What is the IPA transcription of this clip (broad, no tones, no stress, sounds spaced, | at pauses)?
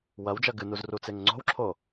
w ɐ w d͡ʒ ɐ ɡ ɨ n u z r u t͡s e ŋ ŋ͡ǀ o̤ w ǁʰ o